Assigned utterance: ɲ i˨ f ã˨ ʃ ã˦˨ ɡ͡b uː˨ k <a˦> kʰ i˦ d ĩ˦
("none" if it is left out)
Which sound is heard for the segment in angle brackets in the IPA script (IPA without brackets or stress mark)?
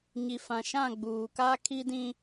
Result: a˦